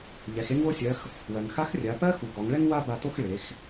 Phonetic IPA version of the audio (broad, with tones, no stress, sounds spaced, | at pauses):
ʎ ɛ˩˧ x e˥ ŋ w o˥ sʲ ɜ˧˥ x | w ɜ˩ ŋ x a˧˥ x rʲ a˩˧ p ɜ˥ x u˩˧ ɡ ɔ˩˧ ŋ ɭ ɛ˥ ŋ w a˥ b a˧ t o˥ x ɭ e˩˧ x